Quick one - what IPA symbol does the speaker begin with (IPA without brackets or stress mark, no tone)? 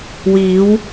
w